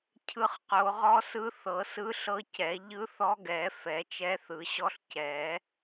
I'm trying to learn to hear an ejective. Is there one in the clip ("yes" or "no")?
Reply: no